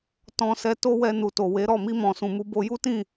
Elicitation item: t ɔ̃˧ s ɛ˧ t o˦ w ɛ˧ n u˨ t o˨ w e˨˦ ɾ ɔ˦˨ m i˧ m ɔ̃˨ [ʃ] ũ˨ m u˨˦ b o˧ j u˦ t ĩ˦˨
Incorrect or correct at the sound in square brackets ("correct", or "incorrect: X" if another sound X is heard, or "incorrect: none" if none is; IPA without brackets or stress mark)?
incorrect: s